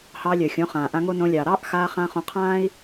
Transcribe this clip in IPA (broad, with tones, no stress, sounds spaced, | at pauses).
h ɑː˧ lʲ œ˨ xʲ õ˨˦ χ ãː˨ ʔ ã˧ ŋ o˦ n õ˧ lʲ ɑː˨ ɾ ɑː˦ ʔ x aː˧ χ ã˧ χ õ˧ qʰ ãː˦ i̯